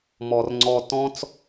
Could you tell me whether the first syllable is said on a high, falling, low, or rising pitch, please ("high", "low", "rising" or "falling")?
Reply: low